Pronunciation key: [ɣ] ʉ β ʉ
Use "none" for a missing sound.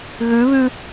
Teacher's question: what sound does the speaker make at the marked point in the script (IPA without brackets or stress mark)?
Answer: ɣ